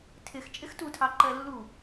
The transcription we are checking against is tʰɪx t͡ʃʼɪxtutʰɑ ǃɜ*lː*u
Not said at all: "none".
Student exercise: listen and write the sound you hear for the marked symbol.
lː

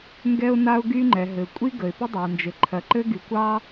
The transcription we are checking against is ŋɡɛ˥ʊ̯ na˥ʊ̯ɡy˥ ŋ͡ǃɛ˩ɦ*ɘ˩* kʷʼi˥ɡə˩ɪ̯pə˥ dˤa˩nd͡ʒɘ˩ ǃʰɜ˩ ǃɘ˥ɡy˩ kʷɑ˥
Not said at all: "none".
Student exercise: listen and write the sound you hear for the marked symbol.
ɘ˩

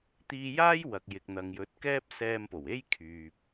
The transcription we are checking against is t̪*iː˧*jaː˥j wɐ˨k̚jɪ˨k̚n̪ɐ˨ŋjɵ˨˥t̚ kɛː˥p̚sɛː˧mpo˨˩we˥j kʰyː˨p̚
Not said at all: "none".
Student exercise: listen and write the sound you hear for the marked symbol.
iː˧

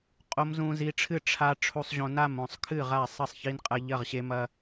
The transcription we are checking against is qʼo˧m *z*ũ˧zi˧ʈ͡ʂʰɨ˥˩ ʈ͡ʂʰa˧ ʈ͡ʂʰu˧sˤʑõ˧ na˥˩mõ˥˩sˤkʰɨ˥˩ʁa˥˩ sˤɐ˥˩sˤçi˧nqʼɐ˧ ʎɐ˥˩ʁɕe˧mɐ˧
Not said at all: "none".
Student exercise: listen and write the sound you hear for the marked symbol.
z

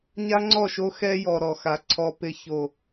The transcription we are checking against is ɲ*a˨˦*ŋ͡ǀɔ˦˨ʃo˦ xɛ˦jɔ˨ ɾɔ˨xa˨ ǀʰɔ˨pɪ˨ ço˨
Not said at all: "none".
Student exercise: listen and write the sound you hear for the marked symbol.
a˦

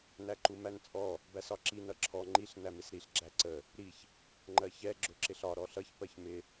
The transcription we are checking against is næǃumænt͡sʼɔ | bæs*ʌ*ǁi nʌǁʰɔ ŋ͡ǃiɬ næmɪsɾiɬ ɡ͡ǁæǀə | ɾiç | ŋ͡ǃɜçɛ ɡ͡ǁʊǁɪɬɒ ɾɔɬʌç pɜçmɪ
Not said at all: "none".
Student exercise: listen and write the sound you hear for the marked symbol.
ɒ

